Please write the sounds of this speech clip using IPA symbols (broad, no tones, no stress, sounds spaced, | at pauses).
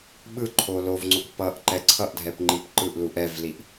ɓ ɯ ǃʰ o l o v ŋ͡ǀ o k p ʌ ʔ ǃ ɛ ǀʰ ʌ ʔ dʱ ɛ p ŋ͡ǃ i p ǃ ɯ ʔ l u ʔ ɛ v l i ʔ